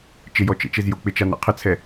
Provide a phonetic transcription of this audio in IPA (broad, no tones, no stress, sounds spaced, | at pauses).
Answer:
t͡ʃ ɪ j ɔ t͡ʃ ḛ t͡ʃ e z j o k͡p ɪ t͡ʃ a n ɛ̰ qʰ ɪ t͡sʰ ɛ